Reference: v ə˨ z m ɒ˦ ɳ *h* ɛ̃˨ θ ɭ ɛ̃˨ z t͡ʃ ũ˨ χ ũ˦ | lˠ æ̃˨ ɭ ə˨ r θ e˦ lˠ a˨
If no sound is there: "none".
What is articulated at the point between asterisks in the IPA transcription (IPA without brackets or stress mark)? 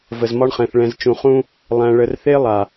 χ